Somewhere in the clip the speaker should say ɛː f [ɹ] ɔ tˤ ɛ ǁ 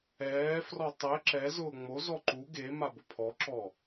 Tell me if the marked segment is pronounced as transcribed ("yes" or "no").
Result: no